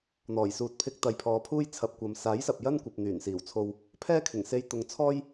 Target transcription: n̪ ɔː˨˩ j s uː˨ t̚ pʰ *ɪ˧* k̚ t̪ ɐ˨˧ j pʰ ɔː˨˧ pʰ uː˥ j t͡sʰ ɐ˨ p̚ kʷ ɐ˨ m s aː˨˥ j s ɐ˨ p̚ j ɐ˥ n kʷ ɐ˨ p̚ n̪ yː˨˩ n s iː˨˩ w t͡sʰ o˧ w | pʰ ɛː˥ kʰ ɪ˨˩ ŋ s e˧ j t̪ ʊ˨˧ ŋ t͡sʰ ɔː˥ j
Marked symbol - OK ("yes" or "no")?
yes